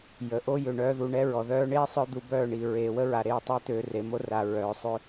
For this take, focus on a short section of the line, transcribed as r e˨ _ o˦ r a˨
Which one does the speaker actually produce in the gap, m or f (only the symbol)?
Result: m